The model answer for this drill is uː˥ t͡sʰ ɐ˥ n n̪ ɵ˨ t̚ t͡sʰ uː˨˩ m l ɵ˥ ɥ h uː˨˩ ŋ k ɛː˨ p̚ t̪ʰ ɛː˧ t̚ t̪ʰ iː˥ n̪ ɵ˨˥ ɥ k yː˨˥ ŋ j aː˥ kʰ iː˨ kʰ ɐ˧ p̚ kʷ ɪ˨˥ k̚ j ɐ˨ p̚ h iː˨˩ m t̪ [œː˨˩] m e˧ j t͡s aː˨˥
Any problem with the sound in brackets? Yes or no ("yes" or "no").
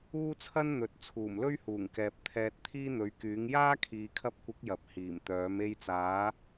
yes